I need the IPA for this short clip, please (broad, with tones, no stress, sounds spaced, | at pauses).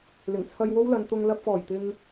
l ɪ˨˩ ŋ t͡sʰ ɐ˧ j w o˥ w l ɐ˨˧ n t̪ ʊ˧ ŋ l ɐ˧ p̚ f ɔː˨˩ j t̪ ɪ˧ ŋ